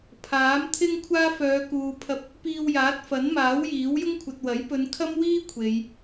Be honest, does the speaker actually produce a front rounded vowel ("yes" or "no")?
yes